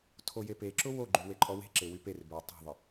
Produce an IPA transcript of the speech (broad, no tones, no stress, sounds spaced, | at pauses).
tʰ o j e p e ǁ ʊ w o ɡ͡ǃ y w e ǃʼ ɔ w e̤ ǁ e w y p e r b ʏ w tˤ ɛ̤ ðˤ ɪ